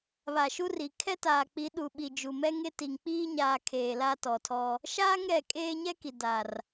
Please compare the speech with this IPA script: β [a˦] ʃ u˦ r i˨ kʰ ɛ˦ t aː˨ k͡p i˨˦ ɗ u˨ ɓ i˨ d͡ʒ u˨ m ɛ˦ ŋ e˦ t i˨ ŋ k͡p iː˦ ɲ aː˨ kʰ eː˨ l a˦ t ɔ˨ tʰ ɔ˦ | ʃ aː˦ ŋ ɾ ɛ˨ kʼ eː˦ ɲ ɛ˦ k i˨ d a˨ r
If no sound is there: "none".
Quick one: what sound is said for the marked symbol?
a˨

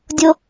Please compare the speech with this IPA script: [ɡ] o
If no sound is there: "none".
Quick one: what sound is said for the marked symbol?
dʲ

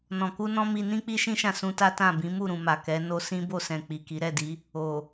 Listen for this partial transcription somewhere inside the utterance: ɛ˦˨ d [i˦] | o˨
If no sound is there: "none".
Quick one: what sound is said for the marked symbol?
i˨˦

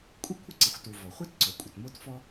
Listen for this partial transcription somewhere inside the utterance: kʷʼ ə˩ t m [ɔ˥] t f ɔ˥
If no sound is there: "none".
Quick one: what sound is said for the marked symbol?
o˥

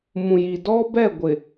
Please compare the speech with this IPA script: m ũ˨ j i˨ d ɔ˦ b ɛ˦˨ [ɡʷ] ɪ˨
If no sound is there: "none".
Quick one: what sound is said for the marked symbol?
ɡʷ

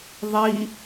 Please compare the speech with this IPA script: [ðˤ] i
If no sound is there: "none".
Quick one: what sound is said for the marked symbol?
ðˤ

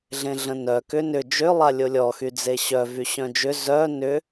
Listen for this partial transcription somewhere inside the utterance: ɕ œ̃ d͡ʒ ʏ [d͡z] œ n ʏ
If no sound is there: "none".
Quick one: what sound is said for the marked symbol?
z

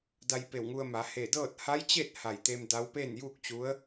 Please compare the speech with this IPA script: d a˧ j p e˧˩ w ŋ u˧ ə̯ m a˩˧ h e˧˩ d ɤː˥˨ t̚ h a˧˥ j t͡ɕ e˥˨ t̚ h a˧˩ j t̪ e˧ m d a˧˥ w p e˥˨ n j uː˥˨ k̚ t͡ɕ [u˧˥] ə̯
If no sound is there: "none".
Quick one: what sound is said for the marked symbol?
u˧˥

